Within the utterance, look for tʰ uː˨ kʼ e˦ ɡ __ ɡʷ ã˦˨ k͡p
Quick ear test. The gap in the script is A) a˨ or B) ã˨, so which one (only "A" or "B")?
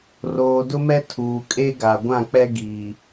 A